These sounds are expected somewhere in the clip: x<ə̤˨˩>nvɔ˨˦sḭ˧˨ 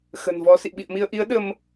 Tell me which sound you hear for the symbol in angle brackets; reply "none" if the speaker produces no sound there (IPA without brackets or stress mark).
ə̤˨˩